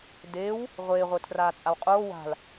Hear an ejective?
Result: yes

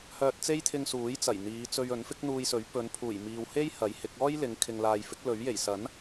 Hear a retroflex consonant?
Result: no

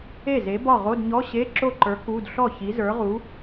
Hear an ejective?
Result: no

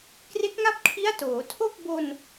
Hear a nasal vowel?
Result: no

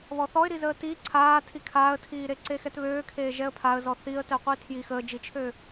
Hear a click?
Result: yes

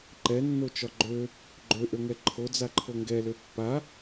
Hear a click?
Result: yes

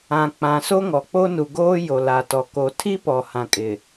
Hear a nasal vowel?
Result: yes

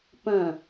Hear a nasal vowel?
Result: yes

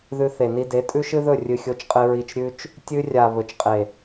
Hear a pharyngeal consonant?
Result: no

